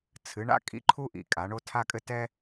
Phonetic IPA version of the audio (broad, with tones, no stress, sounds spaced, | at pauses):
t͡sʰ ɨ˩˧ ɳ a̰˦ kʼ ḭ˦ ǃʰ u˦ ʔ ḭ˩˧ kʼ a˩˧ ɳ o˦ tʰ a˦ kʼ ɘ˦ t ɛ˦